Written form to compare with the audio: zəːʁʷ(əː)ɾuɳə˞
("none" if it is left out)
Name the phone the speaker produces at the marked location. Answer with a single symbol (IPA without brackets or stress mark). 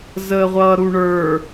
ʌː